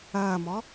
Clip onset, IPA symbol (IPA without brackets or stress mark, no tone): ɐː